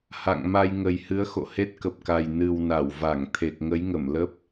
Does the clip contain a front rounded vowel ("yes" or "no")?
no